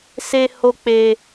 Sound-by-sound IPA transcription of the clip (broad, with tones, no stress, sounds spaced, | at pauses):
s e˧ h o˧ k͡p e˧